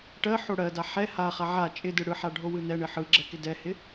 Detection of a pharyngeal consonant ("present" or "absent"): present